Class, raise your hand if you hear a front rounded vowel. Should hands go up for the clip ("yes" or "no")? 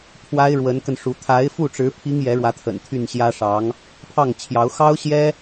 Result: yes